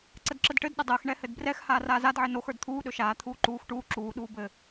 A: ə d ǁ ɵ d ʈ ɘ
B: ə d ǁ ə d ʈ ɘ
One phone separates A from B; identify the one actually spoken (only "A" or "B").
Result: B